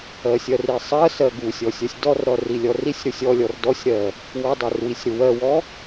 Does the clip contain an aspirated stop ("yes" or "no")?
no